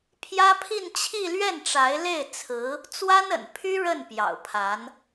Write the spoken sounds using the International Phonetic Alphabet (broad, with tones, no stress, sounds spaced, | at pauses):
pʰ j ä˥ pʰ i˥˧ n t͡ɕʰ i˥˧ l ɥ ɛ˥˩ n ʈ͡ʂ a˧˥ ɪ̯ l e˥˩ ɪ̯ t͡sʰ ɹ̩˧˥ | t͡s w a˥ n ə̰˨˩ n pʰ y˥ ɻ ə˥˩ n p j ɑ̰˨˩ ʊ̯ pʰ a˧˥ n